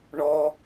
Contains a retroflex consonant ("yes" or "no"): yes